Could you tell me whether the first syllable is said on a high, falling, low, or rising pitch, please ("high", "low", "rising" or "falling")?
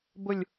low